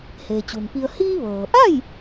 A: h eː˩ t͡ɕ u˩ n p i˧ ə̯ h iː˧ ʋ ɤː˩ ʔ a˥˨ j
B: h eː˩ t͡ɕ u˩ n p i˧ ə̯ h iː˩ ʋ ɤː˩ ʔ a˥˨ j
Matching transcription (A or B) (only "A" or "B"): A